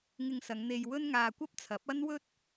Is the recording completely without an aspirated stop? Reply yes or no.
no